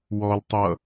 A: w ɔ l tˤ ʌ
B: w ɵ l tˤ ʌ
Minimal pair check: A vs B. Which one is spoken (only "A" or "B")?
A